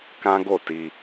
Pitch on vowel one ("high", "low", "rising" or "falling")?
high